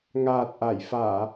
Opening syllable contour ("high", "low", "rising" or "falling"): low